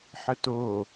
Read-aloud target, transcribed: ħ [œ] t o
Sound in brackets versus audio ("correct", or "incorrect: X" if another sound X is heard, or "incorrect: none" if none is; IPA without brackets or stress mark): incorrect: ə